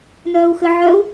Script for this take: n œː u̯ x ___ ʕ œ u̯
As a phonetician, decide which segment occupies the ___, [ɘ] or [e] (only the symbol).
ɘ